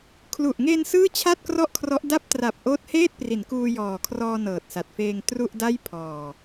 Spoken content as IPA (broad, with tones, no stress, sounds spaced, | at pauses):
kʰ l u˨˩ ʔ ŋ eː˧ n s ɯː˥˩ t͡ɕʰ a˥˩ t̚ k r ɔ˥˩ ʔ kʰ r ɔ˦˥ ʔ d a˦˥ p̚ t r a˨˩ p̚ ʔ oː˦˥ t̚ h eː˥˩ t̚ p r i˩˦ n k uː˧ j ɔː˨˩ kʰ r ɔː˧ n ɤː˨˩ t̚ s a˨˩ t̚ f eː˧ ŋ t r u˥˩ ʔ d a˥˩ j pʰ ɔː˨˩